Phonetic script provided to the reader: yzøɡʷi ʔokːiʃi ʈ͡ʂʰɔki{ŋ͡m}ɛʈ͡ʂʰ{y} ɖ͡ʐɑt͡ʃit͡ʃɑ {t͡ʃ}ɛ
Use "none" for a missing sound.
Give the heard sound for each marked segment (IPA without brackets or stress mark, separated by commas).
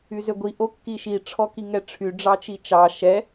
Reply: ŋ, y, ʃ